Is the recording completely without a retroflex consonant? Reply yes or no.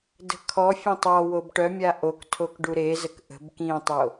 no